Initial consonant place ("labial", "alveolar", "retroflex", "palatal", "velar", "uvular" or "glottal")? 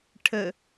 retroflex